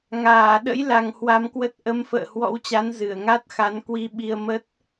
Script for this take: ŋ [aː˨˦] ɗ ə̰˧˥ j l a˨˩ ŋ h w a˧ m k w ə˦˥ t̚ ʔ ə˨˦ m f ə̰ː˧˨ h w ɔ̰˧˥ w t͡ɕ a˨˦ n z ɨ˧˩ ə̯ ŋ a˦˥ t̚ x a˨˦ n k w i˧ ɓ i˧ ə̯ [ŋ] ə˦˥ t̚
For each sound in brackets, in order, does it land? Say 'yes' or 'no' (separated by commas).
no, no